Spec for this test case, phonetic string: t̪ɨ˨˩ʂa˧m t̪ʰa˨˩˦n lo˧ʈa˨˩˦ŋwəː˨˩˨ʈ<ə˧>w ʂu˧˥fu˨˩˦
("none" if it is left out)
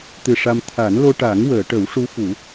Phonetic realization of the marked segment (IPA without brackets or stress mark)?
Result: ə˨˩˦